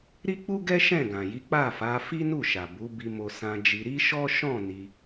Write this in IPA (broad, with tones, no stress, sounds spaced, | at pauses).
ɾ i˦ k͡p u˦ ɡ ɛ˦ ʃ ɛ̃˦˨ ɡ ã˨ j i˨˦ k͡p a˦˨ f a˨˦ f i˦ n u˦˨ ʃ a˨ b u˨˦ b i˧ m o˧ s ã˧ d͡ʒ i˧ ɾ i˦ ʃ ɔ˦ ʃ ɔ̃˦˨ n i˧